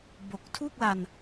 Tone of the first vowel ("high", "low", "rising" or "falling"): low